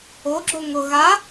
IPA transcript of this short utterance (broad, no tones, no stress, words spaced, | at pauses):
oɡ͡ǁo ŋʊ ɣa